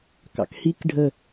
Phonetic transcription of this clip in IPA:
k ɑ̰ k h i k ɖʱ ə

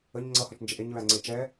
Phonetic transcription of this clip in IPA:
ə ɲ ŋ͡ǀ ʌ h ɒ t͡ʃ n d͡ʒ e ʔ e ɲ ɹ æ ŋ͡ǀ e t͡ʃ ɛ

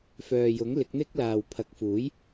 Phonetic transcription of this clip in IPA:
f œː˨ j ʊ˨˥ ŋ l ɪ˨˥ k̚ n̪ ɪ˥ k̚ l aː˨ w pʰ ɐ˨ k̚ f uː˨˥ j

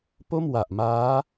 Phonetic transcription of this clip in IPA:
p o˥˩ m w a˨˩ ʔ m aː˦˥

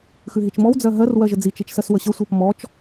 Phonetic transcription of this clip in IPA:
x ʉ ɦ i t͡ʃ m ɔ w d͡z ɜ ɦ ɜ r w ɜ ʒ ə d͡z i t͡ʃ i t͡ʃ s ɜ s w ə ɕ ə sʷ ɜ p m ɔ t͡ʃ

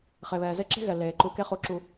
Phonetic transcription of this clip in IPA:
χ e˩ β ɛː˩ z e˥ ǁ e̤˥ ɣ ɛ˩ l eː˩ ǃ u˧ k e˥ χ u˧ ǁ u˧

